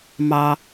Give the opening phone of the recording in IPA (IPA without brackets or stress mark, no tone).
m